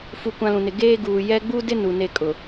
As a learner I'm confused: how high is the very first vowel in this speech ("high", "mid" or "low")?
high